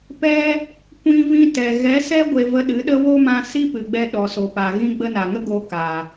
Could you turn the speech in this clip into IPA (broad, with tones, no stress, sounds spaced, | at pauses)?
p ɛ˦ | kʷ ĩ˧ v ĩ˧ t ɛ˨ ɣ ɛ˨˦ s ɛ˦ ɡʷ e˧ v ə˧ ɗ ɨ˨˦ ɗ ə˦ w o˦ m ã˧ s i˦ p ɨ˨ ɡ͡b ɛ˧ ɗ ɔ˨ s o˨ p a˨ ɣ ĩ˧ ɡ͡b ə˧ n a˨ ŋ ə˦ ɡ o˧ k a˨